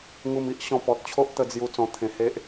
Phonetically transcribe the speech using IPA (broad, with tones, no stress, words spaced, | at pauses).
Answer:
ŋu˧mi˦ʔɕɔ̃˧ pɔ˨t̚t͡ɕʰo˦ʔt̪ə˧d͡zju˧ t͡sɔ̃˧t̪ʰẽ˧he˦ʔ